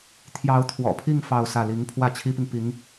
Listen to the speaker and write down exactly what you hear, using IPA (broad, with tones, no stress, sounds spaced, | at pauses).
t̪ʰ j ɑ˧˥ ʊ̯ t̪ʰ w ɔ̰˨˩ pʰ i˥˧ ŋ f ɑ˥˧ ʊ̯ s ä˥˩ l i˧˥ ŋ pʰ w ä˥˩ t͡ɕʰ i˥ p i˨ ŋ p i˧˥ ŋ